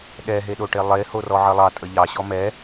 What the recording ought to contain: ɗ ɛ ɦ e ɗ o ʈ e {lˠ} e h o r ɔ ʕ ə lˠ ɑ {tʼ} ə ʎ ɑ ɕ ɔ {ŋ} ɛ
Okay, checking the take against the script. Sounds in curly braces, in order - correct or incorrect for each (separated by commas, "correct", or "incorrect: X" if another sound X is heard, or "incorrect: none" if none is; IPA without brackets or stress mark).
correct, correct, incorrect: m